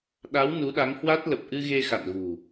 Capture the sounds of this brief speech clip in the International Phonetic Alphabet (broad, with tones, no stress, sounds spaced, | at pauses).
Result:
ɗ a˨˦ w n u˨˦ ɗ a˨˦ ŋ h w a˦˥ t̚ l ə˨˩ p̚ ʔ ɨ˧ ɣ e˧ x a̰˧˨ n ɣ ṳ˨˩